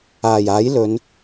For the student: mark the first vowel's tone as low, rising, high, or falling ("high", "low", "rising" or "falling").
low